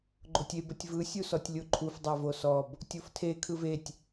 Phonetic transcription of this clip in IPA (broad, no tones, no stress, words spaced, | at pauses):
ɡ͡ǃotʲeb ətʲvɯ sʲusɔtʲlʲoǃʰuf dˤavosɔb | tʲoftʰe kʰɯvetʲ